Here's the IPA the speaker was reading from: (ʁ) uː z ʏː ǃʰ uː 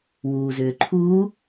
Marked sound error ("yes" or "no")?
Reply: yes